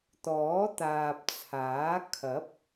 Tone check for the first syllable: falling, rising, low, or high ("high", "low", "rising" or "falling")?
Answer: rising